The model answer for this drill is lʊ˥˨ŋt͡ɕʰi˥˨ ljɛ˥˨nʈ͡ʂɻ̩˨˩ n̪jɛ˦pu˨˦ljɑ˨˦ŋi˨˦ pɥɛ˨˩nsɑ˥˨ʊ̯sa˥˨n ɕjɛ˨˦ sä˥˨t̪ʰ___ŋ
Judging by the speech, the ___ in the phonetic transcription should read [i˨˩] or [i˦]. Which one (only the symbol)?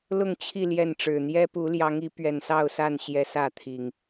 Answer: i˨˩